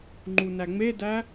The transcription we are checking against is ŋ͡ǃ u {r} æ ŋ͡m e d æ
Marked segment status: incorrect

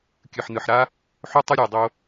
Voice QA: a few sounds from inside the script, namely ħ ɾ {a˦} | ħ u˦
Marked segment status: incorrect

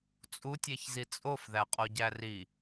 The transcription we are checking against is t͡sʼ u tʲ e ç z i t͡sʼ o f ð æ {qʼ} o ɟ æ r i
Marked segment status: correct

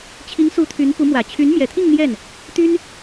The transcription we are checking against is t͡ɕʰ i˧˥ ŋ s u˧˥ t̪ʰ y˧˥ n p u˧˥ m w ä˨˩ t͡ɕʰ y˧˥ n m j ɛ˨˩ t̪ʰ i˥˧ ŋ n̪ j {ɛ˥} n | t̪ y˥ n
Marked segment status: incorrect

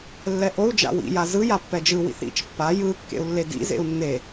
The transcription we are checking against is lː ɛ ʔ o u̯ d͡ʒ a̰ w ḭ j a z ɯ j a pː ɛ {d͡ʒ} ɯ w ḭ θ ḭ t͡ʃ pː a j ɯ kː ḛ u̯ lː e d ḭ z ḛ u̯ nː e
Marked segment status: correct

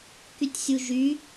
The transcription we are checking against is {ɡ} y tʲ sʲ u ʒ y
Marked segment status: incorrect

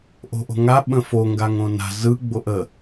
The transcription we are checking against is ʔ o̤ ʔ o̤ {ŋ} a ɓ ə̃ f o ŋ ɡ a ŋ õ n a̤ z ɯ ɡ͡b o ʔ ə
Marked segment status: correct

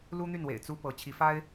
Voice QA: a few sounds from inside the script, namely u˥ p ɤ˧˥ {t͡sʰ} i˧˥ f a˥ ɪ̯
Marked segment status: incorrect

